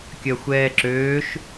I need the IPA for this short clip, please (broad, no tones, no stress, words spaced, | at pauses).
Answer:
kʲɐxʷɛːǁøːʃ